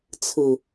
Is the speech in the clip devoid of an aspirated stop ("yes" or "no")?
no